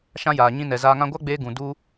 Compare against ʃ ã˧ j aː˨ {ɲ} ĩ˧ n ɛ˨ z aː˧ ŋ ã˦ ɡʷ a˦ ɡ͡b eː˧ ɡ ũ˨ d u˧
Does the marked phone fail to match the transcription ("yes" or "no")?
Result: no